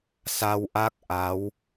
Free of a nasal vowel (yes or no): yes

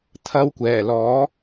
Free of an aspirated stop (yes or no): no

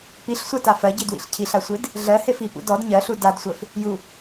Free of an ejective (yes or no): yes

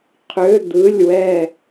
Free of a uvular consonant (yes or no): no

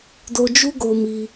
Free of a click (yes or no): yes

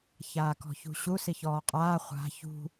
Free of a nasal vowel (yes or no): yes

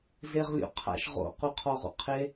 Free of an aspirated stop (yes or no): no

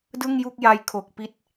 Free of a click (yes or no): yes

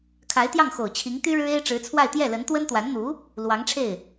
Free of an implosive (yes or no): yes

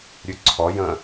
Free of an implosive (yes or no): yes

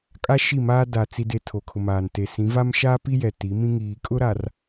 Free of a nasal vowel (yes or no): no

